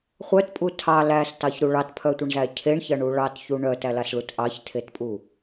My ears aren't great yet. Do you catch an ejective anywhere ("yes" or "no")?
yes